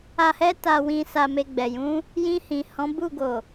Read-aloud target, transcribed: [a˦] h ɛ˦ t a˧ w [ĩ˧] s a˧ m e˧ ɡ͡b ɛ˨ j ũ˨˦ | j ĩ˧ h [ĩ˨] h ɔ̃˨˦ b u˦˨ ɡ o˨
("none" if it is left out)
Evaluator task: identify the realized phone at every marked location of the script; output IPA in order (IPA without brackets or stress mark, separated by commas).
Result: a˧, ĩ˧, ĩ˨